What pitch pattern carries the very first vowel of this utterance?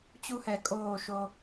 high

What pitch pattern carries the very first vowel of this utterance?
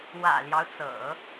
low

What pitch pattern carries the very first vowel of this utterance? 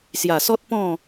low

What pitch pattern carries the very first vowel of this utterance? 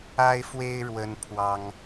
high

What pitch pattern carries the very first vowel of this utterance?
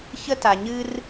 high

